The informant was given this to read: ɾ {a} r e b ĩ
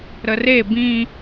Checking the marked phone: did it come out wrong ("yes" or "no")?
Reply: yes